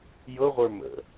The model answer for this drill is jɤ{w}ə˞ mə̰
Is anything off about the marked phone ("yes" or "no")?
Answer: yes